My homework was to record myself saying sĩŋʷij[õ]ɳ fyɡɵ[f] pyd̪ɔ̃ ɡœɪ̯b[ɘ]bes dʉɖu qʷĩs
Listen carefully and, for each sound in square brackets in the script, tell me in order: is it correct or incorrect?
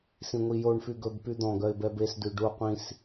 incorrect, incorrect, incorrect

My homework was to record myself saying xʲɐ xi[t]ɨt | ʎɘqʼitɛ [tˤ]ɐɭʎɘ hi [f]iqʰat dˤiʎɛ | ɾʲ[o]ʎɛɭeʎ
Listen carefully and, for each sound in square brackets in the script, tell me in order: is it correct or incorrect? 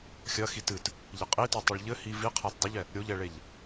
correct, correct, incorrect, correct

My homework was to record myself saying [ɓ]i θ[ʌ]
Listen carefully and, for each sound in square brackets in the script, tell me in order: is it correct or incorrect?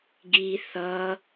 incorrect, correct

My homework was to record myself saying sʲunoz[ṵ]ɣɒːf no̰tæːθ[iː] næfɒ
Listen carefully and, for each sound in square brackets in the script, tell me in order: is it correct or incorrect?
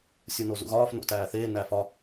correct, incorrect

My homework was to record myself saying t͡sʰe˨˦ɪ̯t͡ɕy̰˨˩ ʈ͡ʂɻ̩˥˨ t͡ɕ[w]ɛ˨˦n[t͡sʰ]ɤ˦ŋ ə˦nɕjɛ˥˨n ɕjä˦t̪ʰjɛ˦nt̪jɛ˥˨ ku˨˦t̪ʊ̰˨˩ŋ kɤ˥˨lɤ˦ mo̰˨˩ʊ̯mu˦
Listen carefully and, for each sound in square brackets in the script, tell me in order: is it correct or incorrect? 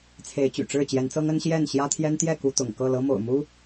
incorrect, incorrect

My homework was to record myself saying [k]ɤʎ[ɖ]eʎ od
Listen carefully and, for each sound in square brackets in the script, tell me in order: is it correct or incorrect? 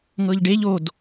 incorrect, correct

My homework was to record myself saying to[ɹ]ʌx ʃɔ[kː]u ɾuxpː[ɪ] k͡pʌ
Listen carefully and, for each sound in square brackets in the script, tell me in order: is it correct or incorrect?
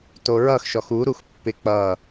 correct, incorrect, correct

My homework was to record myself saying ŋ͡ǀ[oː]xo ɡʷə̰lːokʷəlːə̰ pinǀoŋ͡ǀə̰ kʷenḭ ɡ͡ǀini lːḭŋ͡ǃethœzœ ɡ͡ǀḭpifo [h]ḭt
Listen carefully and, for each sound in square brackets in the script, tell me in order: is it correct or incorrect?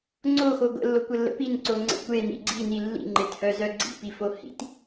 incorrect, correct

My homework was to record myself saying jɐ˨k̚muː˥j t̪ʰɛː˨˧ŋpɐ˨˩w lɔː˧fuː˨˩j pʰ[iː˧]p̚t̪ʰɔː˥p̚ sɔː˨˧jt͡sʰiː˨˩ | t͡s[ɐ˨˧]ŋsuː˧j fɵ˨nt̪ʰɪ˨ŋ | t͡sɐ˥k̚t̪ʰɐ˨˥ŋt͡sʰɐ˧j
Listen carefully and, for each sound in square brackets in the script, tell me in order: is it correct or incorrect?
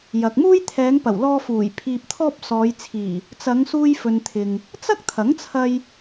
correct, correct

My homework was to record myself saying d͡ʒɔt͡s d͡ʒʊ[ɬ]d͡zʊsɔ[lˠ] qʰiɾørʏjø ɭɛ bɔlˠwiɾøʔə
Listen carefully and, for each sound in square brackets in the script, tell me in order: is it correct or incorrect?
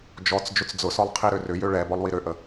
incorrect, correct

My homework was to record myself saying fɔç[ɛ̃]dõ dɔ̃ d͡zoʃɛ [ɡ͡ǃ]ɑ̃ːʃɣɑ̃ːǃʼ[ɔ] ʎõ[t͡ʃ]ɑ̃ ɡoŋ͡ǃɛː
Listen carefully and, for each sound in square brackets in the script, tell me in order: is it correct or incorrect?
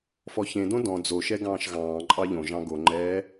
incorrect, incorrect, incorrect, incorrect

